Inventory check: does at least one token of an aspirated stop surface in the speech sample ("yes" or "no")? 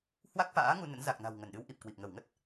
no